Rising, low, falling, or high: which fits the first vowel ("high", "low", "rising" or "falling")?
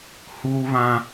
high